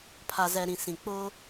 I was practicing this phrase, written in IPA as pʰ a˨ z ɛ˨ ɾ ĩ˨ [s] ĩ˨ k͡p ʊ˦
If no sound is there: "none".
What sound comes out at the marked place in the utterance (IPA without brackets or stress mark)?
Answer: s